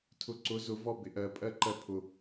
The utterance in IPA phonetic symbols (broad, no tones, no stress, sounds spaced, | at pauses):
tʰ ʊ ǀ ʊ z ʊ v ɔ b ɪ ʔ ɜ pʼ ɜ ǃ ɜ pʰ ʊ